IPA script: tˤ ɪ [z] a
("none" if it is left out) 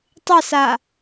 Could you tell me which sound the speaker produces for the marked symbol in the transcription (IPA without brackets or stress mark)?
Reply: s